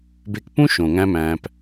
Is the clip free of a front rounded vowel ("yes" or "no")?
yes